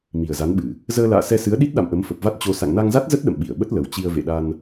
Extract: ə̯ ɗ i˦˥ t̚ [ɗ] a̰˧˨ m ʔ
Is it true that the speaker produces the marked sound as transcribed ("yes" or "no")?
yes